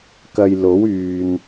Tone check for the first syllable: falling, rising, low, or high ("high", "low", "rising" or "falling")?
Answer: low